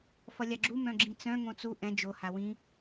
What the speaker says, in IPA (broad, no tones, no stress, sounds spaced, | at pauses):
f ʌ lʲ a ɡ͡ǁ u m œ̃ ɡ͡ǁ ĩ t͡s œ̃ ŋ õ t͡s u ʔ ɛ̃ d͡ʒ o h a w ĩ